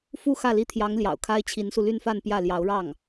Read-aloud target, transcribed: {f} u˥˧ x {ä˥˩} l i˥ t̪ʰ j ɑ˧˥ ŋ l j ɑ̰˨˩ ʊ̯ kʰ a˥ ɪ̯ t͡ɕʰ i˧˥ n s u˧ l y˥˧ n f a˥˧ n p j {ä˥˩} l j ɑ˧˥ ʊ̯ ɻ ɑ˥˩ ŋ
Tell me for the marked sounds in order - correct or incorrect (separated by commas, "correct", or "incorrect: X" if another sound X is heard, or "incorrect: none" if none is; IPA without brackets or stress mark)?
correct, correct, correct